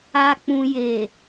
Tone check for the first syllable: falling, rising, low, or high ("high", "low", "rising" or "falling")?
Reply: low